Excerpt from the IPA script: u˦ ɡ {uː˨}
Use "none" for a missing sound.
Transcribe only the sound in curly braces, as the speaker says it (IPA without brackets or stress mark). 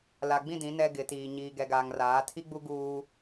uː˦